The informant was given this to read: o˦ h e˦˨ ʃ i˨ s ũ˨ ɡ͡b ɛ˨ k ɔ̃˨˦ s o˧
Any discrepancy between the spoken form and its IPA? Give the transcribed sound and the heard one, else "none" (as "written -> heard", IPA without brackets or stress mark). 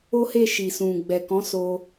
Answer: none